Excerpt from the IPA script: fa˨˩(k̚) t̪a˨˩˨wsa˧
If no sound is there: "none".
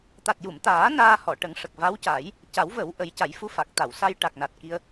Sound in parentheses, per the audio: k̚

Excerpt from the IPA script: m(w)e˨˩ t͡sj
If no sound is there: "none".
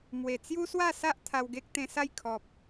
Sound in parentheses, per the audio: w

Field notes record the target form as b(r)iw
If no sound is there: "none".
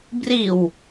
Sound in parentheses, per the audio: r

